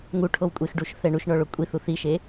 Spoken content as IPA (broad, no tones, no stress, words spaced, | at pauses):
ŋu ʈʰowkʷʼexɖuʃ θɛɳuʃɳɔ ɭokʷʼiθuθ iʃe